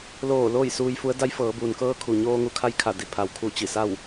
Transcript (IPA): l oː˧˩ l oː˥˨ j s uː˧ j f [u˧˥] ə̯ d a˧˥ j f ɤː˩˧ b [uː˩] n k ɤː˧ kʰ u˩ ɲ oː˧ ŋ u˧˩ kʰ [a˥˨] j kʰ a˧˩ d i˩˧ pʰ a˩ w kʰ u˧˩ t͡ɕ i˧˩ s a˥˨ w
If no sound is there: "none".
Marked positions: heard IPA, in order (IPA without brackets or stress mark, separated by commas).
u˧˥, uː˩, a˥˨